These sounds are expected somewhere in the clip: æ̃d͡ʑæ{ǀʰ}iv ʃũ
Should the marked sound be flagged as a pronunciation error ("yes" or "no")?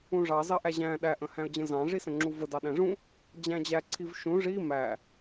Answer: no